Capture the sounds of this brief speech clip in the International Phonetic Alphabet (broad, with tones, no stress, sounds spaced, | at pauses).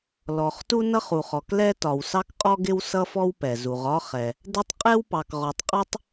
l ɔ˩ χ t u˥ n ʌ˥ χ u˩ χ ɔ˩ k l ɛ˥ t ɒ˩ w s ɑ˥ k qʼ ɔ˥ ɡ ɪ˥ w s ʌ˥ f ɔ˥ w p ɛ˩ z u˩ ʁ ɒ˥ χ ɛ˩ | d ɛ˥ tˤ qʼ ɛ˥ w p ɑ˩ k ʁ ɔ˩ tˤ qʼ ɒ˥ tˤ